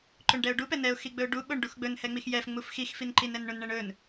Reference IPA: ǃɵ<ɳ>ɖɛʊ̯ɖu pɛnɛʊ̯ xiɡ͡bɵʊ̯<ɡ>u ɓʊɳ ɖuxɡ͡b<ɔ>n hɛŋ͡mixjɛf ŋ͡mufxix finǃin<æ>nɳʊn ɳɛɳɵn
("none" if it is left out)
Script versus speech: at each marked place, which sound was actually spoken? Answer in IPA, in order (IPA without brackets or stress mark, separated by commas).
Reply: ɳ, ɖ, ɵ, ɛ